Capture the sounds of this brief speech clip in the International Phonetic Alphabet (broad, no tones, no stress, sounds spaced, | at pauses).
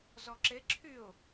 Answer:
z ɔ ǁ e ǁʰ y ʊ̯